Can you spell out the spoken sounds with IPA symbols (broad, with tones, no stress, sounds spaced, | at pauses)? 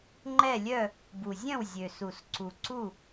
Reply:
ŋ͡ǃ ɛ˥˨ lʲ œ˥˨ | b u˨˩ zʲ œ̃˥˨ w zʲ ø˨˩ s u˨˩ s ǀ u˨˩ ǀ u˥˨